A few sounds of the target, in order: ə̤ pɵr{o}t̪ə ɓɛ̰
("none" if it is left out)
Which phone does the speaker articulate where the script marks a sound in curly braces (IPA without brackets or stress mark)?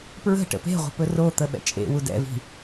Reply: o